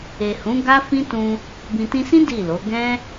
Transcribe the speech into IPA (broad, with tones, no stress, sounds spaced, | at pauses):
e˨ h ũ˨˦ ɡ a˦ f ĩ˦ t ũ˧ | b ĩ˨ t ĩ˧ s ĩ˦ d i˦˨ l o˨˦ ɡ ɛ̃˦